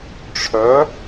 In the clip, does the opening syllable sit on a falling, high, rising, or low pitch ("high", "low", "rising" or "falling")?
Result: rising